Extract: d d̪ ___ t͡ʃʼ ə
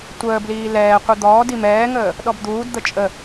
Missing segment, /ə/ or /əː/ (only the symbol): ə